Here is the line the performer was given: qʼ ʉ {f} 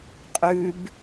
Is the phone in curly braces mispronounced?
yes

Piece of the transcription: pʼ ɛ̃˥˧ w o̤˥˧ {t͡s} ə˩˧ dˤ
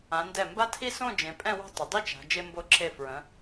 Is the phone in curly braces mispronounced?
yes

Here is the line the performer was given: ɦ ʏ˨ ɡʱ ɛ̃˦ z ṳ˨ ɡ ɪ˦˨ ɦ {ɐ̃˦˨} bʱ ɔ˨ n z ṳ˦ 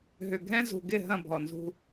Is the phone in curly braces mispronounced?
no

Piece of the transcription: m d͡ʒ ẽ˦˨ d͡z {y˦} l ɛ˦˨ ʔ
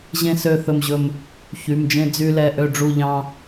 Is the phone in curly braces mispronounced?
no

